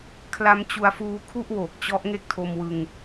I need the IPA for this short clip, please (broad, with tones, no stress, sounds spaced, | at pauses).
kʰ l a˦˥ m t͡ɕ u˧ a̯ f uː˧ kʰ u˥˩ ʔ w oː˨˩ k̚ t͡ɕ ɔ˦˥ ʔ ŋ e˥˩ k̚ tʰ o˧ m w ɯ˧ ŋ